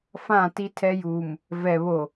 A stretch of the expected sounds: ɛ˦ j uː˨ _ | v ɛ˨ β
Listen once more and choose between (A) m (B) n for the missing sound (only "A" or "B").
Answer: A